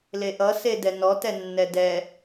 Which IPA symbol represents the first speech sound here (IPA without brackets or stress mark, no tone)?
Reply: l